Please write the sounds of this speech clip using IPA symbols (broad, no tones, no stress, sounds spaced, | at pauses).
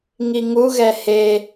ŋ i ŋ u ɣ ɛ h e